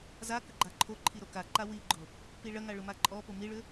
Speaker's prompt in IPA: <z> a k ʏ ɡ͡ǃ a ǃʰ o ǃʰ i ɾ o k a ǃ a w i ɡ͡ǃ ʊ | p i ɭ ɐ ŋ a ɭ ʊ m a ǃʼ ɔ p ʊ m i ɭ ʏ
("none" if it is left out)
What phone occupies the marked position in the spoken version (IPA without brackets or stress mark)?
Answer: z